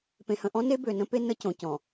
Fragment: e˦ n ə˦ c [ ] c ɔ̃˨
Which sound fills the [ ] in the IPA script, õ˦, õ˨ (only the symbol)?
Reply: õ˨